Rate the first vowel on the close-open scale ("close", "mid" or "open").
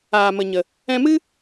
open